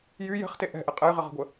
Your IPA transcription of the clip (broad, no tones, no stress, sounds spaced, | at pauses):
j y j ɛ̤ χ t e ʔ ɛ̤ ʔ ɛ qʼ ɛ j ʁ ɪ ʁ ə̤ ɡʷ ə